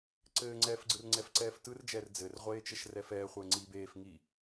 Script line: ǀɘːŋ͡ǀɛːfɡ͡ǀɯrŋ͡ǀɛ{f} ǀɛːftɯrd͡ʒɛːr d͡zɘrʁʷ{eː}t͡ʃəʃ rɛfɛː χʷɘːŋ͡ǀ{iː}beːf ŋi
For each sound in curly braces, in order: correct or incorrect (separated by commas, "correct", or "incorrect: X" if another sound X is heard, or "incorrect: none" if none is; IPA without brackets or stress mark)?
correct, correct, correct